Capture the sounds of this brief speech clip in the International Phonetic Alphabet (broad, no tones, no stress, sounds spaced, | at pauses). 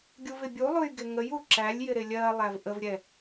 ɡʲ u v ɪ bʲ u lˠ u j ɡ ɪ ŋ ə j u ǁ æ lʲ j ɪ ɾ ɪ lʲ ɜ lˠ æ v ʔ ə v ɾʲ ɛ